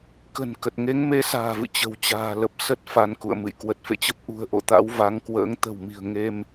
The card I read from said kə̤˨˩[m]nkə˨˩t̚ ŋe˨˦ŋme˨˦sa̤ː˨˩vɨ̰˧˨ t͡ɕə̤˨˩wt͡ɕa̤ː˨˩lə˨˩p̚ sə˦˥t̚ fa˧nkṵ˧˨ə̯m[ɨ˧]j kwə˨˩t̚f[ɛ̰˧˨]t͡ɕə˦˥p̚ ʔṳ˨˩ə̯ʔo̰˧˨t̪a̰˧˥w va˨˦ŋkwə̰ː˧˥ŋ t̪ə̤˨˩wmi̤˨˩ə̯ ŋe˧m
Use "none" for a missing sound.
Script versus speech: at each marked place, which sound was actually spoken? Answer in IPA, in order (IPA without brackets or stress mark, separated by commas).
none, ɨ̰˧˨, ḛ˧˨